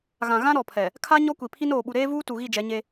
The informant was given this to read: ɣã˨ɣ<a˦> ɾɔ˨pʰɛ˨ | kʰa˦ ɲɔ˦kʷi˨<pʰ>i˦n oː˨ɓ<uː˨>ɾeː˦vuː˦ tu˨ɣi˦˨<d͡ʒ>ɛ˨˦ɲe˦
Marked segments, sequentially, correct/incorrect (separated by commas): incorrect, correct, incorrect, correct